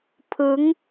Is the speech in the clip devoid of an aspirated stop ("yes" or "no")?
no